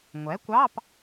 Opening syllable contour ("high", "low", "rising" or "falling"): rising